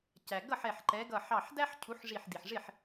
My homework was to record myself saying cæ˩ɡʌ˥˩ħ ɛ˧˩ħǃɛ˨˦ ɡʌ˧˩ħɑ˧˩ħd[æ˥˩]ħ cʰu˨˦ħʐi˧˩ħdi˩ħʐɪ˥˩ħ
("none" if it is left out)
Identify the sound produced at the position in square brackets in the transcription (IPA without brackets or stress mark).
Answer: æ˥